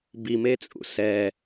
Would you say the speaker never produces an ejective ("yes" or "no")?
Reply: no